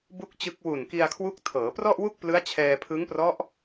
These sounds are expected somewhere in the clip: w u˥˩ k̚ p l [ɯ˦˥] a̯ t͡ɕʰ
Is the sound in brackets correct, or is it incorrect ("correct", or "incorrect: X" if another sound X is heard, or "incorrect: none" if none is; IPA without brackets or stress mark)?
correct